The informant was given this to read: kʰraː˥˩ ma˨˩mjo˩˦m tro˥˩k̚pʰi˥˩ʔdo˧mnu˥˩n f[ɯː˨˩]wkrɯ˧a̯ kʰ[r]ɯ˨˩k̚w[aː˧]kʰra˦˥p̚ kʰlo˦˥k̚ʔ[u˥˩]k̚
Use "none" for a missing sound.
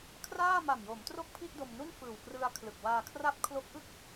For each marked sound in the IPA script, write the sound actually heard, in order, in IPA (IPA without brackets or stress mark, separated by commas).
ɯː˨˩, l, aː˧, ɯ˥˩